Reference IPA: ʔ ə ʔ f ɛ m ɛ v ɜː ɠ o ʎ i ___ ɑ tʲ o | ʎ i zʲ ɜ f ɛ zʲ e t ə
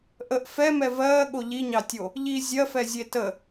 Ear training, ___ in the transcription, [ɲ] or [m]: ɲ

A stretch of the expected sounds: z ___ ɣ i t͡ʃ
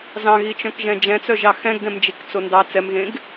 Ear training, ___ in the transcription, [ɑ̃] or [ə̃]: ɑ̃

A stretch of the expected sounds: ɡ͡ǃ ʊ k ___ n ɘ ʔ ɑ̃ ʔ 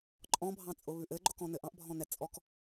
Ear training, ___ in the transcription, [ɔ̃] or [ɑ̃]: ɔ̃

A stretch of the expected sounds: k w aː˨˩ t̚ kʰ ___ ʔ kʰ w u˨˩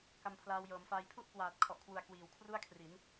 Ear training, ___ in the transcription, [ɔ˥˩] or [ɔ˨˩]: ɔ˨˩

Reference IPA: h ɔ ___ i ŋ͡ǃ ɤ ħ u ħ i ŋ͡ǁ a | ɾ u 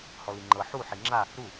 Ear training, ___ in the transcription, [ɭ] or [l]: l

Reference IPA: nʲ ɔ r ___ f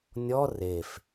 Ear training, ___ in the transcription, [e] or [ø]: e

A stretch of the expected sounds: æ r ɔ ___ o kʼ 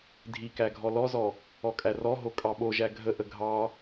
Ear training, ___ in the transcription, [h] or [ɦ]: ɦ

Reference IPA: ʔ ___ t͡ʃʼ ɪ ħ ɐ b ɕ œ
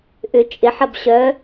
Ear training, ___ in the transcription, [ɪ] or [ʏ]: ʏ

